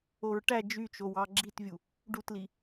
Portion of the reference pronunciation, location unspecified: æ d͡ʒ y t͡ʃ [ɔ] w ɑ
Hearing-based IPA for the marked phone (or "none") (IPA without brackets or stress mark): o